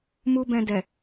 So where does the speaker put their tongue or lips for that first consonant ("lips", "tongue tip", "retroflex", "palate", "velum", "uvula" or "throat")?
lips